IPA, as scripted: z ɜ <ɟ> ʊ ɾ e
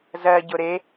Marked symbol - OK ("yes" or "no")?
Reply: yes